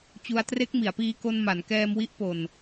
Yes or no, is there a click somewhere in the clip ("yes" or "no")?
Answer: no